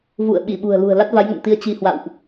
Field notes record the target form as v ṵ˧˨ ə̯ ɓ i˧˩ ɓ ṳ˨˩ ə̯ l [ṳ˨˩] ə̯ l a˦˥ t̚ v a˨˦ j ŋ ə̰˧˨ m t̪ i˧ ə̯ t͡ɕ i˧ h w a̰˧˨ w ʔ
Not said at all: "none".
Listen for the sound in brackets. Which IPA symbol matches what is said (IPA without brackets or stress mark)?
ṳ˨˩